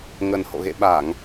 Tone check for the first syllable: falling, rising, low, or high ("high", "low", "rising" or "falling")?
low